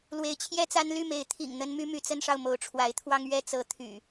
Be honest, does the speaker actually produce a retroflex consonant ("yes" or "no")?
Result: yes